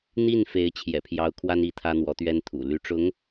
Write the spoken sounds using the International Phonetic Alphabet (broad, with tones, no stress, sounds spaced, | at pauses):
n̪ i˥˩ n f e˧˥ ɪ̯ t͡ɕʰ j ɛ̰˨˩ pʰ j ɑ˧˥ ʊ̯ kʰ w a˥ n i˧˥ t̪ʰ ä˥ n̪ w ɔ˧˥ t̪ ɥ ɛ˥ n t̪ʰ ṵ˨˩ l y˧˥ ʈ͡ʂ ʊ˧˥ ŋ